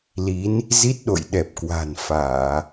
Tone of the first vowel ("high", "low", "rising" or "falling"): rising